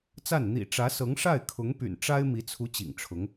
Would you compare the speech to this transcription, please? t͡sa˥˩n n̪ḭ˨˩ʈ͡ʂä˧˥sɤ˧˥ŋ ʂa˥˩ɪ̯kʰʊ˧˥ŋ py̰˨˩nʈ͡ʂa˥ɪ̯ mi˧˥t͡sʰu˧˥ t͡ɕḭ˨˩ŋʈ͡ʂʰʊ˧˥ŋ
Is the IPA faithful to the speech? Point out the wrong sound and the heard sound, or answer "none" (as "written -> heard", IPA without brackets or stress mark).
none